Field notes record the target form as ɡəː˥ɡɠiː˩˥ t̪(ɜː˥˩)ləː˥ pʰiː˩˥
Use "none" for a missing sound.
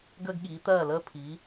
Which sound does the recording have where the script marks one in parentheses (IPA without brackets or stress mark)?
ɜː˥˩